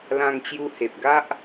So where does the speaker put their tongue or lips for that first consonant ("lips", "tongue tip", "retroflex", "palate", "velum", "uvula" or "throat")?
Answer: tongue tip